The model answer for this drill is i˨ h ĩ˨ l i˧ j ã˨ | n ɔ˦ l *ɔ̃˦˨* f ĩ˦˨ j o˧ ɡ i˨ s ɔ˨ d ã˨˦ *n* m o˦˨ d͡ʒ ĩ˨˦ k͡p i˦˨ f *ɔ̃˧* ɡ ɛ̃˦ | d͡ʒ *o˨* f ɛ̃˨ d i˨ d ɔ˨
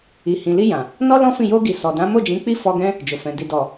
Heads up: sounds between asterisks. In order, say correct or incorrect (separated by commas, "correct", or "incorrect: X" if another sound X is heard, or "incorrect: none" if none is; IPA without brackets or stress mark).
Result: incorrect: ɔ̃˦, incorrect: none, incorrect: ɔ˧, correct